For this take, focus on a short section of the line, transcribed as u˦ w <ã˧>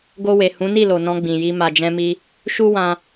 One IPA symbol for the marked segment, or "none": ã˧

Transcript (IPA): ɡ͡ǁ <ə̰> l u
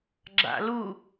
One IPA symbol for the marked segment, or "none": a̰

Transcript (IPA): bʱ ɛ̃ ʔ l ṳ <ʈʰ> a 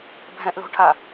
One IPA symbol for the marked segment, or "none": ʈʰ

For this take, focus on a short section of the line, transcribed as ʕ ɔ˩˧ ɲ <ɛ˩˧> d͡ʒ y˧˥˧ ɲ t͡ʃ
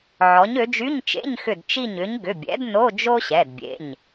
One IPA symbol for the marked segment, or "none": ø˩˧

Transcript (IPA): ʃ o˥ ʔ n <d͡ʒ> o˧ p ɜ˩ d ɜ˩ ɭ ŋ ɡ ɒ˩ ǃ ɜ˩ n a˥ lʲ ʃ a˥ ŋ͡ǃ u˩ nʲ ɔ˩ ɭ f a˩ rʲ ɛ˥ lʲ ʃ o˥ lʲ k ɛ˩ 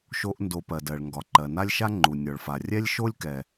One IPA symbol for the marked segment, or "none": d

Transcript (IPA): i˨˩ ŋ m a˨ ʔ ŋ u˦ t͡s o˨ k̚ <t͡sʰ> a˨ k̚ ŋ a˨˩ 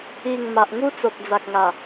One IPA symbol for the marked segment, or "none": d͡z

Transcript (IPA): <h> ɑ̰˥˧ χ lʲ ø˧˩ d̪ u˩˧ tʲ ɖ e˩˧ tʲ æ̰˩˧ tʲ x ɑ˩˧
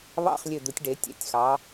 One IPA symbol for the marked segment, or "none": β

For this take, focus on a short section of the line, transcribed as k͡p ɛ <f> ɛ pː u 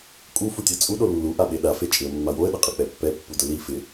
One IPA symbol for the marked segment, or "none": pː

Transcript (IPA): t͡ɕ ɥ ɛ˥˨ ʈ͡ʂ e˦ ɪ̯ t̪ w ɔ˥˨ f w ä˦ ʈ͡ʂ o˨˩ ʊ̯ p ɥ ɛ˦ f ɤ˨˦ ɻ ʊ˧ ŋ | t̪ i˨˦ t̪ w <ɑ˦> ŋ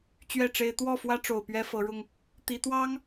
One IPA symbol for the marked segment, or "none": ɑ˦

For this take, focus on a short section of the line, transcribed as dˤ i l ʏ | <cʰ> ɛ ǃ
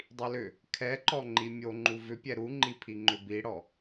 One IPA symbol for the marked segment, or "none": kʰ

